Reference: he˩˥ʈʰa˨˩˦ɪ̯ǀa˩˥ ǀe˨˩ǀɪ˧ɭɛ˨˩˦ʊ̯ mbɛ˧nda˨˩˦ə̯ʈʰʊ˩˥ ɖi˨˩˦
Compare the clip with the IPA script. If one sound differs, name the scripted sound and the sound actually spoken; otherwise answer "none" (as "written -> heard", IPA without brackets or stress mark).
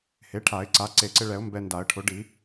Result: none